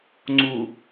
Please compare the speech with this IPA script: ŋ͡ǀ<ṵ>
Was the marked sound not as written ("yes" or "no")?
yes